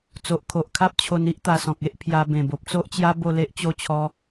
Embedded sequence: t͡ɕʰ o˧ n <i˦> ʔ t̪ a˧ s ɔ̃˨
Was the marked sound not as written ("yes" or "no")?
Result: no